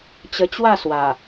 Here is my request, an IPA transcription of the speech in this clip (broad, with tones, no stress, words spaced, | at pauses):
t͡ɕə˧t͡ɕwa˥˧ swa˨˩